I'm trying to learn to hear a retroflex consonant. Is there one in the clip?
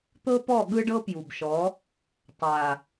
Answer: yes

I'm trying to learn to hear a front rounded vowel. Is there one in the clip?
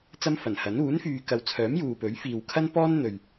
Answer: yes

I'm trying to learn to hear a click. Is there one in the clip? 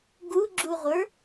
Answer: yes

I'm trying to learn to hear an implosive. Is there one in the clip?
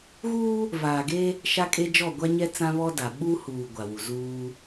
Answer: yes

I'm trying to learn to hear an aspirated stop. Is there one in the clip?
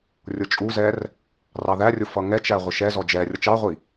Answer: no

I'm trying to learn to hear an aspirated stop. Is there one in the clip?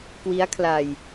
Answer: yes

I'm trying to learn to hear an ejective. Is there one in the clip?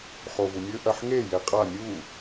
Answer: yes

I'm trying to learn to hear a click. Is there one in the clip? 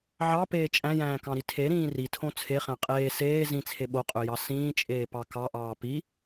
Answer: no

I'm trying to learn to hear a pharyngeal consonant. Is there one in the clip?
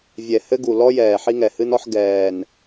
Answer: yes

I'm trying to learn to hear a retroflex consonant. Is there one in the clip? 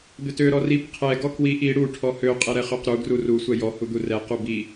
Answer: yes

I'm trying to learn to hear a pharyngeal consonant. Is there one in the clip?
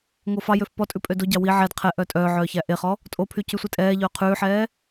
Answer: yes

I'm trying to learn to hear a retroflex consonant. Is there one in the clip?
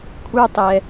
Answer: no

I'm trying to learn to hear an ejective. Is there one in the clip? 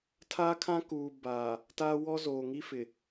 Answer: no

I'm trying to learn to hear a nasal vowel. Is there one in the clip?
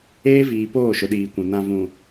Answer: yes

